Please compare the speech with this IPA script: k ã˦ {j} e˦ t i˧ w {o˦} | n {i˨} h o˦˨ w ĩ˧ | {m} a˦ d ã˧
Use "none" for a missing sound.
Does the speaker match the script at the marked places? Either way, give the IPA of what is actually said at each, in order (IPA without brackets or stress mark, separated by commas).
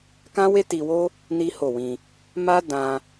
w, o˦, i˦, m